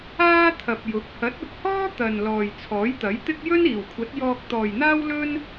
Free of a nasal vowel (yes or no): yes